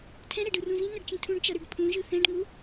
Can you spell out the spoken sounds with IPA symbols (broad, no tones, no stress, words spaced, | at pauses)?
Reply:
tʰɛ̃ɾɛɖɯrũ zĩŋʌɖt͡ʃĩ tʰũɖt͡ʃʌɾɯɖ pʰũʒɯ θɛ̃ɖŋu